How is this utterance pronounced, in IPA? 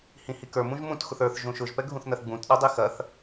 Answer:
hĩhikə˞ mũʒmũt xʊθə˞θ ʒũʃʊʒ pɛɡʱũθnɐθɡ͡bũt ɗɐdˤixɐθ

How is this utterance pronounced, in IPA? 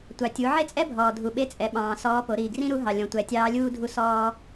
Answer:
tʷɑ˩tʲu˩˧ ʕe˥t͡sʼɛ˥bʱɔː˩ dʱu˩ɓe˧˥t͡sʼɛ˩˧ɓɑ̃ː˩ sɔː˧˥po˩˧ ɾiː˩ɡrĩ˥ɾu˧˥ɦɑ˩ lʲɔ̃˩˧tʷæ˩˧tʲɑː˧˥lʲuː˥ dʱu˧sɔː˧

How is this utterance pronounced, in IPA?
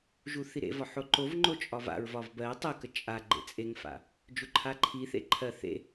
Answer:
ʒuθiɾḛvɒ ħoǃovŋ͡ǃo t͡ʃʼɒva̰ɹvɒv bɜ tˤəkə t͡ʃʼaɡ͡ǃḛ t͡sʼeŋfa̰ | d͡ʒuǃʰaǃʰiθḛ ǃʰɜ θḛ

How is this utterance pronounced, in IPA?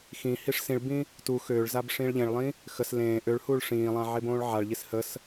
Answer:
xĩ hiʂsĩɭbĩ | tu xøːɭzab ʂĩːɭʎẽɭlˠĩ | xəs lẽː ʔøɭhuɭ ʂĩːlˠã ʕebõːɭʕaɭʎis həs

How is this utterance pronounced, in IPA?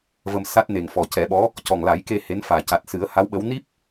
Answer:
və˧m sa˦˥t̚ne˨˩ŋ fɔ˨˩cɛ˨˩˦ɓɔ˧˥ | cɔ˨˩ŋla˨˩˦jke˧ he˧˥nfaː˨˩ ca˨˩t̚ sɨ˨˩˦ə̯ha˧˥wɓə˧˥w ni˦˥p̚

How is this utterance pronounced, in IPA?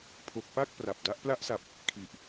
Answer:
pʰo˨˩k̚pa˥˩k̚ pra˨˩p̚da˦˥ʔ pla˦˥ʔsa˨˩p̚ | kʰi˨˩ʔ

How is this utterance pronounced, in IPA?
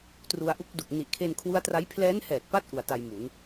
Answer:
tru˧a̯ʔu˦˥k̚du˨˩k̚ ni˨˩ʔkʰe˧nkʰwu˦˥a̯tra˦˥j pʰlɛː˦˥nhɛː˨˩t̚pa˦˥t̚ ʔu˨˩a̯ta˧jmu˩˦n

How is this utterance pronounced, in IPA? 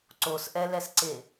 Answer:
ǀosʔɛlɛsǀe

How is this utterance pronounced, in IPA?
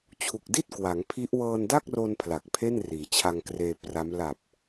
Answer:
t͡ɕʰu˨˩k̚di˥˩t̚ kwa˩˦ŋpʰi˦˥ʔ wɤː˧nda˥˩k̚ro˧n pʰla˨˩k̚pʰe˥˩n riː˩˦t͡ɕʰa˧ŋkreː˧ pra˦˥m la˨˩p̚

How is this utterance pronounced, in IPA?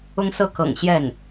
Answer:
ʊ˥ŋsɤ˥ kɤ̰˨˩ŋ ɕjɛ˥˩n

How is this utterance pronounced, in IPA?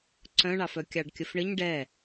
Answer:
ǀœ̃ɳɑfœ kʲɑɖkʲəfɳɘɲ ɖɛ

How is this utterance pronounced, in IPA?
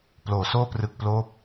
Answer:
ploː˩˦soː˥˩ prɯ˨˩k̚ploː˦˥p̚

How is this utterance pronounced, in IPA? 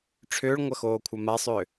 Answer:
ʈ͡ʂʰʏːɭŋʷɐxoːkʷʰɐ masˤʏ

